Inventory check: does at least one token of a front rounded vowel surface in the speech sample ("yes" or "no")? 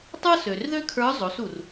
yes